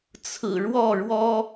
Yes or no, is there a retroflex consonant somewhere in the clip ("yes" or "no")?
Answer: yes